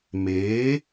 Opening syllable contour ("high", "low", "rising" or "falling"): rising